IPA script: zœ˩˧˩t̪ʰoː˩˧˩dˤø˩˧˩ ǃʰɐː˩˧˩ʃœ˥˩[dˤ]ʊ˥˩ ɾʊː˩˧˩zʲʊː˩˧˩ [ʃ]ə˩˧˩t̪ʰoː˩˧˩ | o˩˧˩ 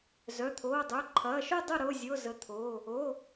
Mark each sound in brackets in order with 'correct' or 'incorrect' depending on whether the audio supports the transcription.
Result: correct, incorrect

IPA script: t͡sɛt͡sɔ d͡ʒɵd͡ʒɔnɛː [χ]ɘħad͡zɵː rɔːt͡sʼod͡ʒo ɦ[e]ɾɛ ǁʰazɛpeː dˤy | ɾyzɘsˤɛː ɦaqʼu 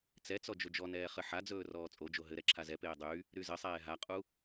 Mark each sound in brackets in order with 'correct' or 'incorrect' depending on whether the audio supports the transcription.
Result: correct, incorrect

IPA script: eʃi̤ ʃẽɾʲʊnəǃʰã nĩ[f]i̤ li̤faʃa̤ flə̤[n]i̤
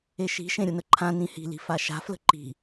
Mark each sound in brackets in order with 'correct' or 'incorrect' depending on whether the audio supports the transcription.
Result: incorrect, incorrect

